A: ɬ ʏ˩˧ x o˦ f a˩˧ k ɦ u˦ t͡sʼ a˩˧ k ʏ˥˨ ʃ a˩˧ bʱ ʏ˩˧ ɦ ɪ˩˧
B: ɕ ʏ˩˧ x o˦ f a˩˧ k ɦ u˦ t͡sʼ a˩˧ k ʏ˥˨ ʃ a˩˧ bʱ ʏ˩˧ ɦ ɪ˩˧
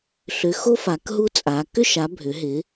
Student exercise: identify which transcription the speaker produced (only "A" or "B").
A